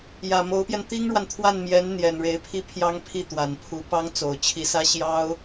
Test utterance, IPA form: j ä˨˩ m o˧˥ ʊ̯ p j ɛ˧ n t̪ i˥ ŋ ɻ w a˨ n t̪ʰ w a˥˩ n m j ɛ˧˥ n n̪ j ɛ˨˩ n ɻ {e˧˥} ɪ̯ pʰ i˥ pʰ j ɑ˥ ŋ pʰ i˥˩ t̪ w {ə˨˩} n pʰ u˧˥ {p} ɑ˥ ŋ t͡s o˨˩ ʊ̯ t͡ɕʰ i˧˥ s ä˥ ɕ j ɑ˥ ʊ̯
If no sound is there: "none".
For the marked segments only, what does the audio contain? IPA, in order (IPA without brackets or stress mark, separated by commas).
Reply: e˧˥, a˨˩, p